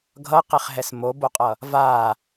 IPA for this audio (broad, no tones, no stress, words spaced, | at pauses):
ɡʱʌqeχɦɛs moboqʼʌ | va